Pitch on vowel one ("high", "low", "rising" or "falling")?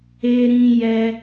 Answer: high